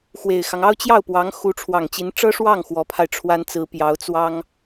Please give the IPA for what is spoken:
x w e˨˩ ɪ̯ x ɑ˦ ŋ ɑ˥ ʊ̯ t͡ɕ j ɑ˥˩ ʊ̯ p w ɑ˧˥ ŋ x u˧˥ ʈ͡ʂʰ w ɑ˨˩ ŋ t͡ɕ i˧˥ n ʈ͡ʂ ɤ˥ ʂ w ɑ˥˩ ŋ x w ɔ˧˥ pʰ a˧ ɪ̯ ʈ͡ʂʰ w a˥ n t͡s ɹ̩˧˥ p j ɑ˧˥ ʊ̯ t͡s w ɑ˥ ŋ

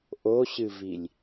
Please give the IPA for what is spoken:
ʔ o ɕ ɨ v i lʲ

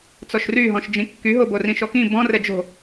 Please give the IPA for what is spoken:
t͡s ɔ ʃ r y ɦ ɔ̃ ʃ d͡ʒ ĩ kː y ɦ o b o r ĩ ʃ ɔ k ĩ b ɔ̃ r ɛ d͡ʒ o̤

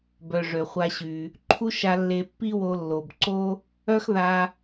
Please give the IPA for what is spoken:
b œ˩ ʐ ø˩ χʷ a˧ ɕ y˩ | ǃʰ u˥ ʃ a˧ lː e˧ pː i˥ w o˧ lː o˩ b ǀ o˥ | œ˥ x ð a˧

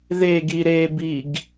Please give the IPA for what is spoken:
ð e ɡ i ɾ e b i ɡ

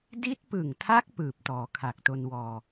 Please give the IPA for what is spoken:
d i˦˥ t̚ p ɯ˨˩ ŋ tʰ a˦˥ k̚ p ɯː˨˩ p̚ t ɔː˩˦ kʰ a˨˩ k̚ t o˧ n w ɔː˧

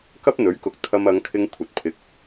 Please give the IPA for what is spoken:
k ɐ˥ p̚ n̪ ɵ˨˥ ɥ k ʊ˨ k̚ t̪ʰ ɐ˧ m ɐ˨˧ ŋ kʰ ɪ˧ ŋ kʷʰ ɐ˨ t̚ pʰ ɪ˨˥ k̚

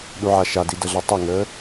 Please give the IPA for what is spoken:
ɗ u ʕ a ʃ a d i d ə ɮ ʌ tˤ ʌ ŋ əː

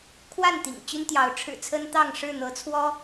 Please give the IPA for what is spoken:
kʰ w a˥˨ n t̪ ḭ˨˩ ŋ t͡ɕ y˦ n t̪ j ɑ˨˦ ʊ̯ ʈ͡ʂʰ ɻ̩˨˩ t͡sʰ ə˦ n t̪ ɑ˥˨ ŋ ʂ ɻ̩˥˨ n̪ ɤ˨˦ t͡sʰ w ɔ˦

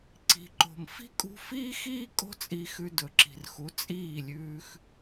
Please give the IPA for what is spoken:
ǀ i̤˨ ǃ o̤˨ m f i̤˦ kʼ ṳ˧ f iː˦ x iː˦ kʼ o̤˦ t͡sʼ i˧ x ʉ˧ d ɵ˨ ǁ i̤˨ r x u˨˦ t͡sʼ iː˦˨ lʲ ʉː˧ x

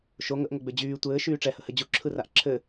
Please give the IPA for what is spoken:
ʃ o ŋ ə ʔ ŋ o ɡ͡b ø d͡ʑ yː tʷ ɘː ʃ yː ʈ͡ʂ ɛ h ə h ɘ d͡ʑ u ǁʰ ɯ r a ʔ ǁʰ ɘ

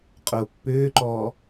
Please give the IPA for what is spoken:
qʼ ʊː pː ʏː ǃ ɔː

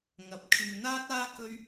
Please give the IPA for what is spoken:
ŋ ɐ˨ p̚ kʰ yː˨ n̪ aː˥ t̚ aː˥ k ɵ˥ ɥ

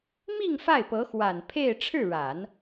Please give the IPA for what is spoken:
m i˥˧ ŋ f a˥˩ ɪ̯ p ɤ˧˥ x w a˨˩ n pʰ e˥˧ ɪ̯ ʈ͡ʂʰ ɻ̩˥˩ ɻ a˨˩˦ n

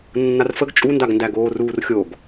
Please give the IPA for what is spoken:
nː a r f ə ɡ t͡ʃʼ u n d a ɡ n d æ ɡ oː r uː r xʲ o ɡ

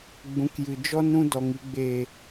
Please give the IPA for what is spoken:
ɡ͡b ũ˨˦ k j ɨ˨ d͡ʒ ɔ˦ n ɾ ũ˦ d ɔ˨ ŋ i˨ ɡ͡b eː˨

